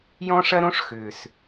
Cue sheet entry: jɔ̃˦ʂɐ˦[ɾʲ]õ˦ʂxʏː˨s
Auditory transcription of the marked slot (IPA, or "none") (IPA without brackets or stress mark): ɾ